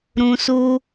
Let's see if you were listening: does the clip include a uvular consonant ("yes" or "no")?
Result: no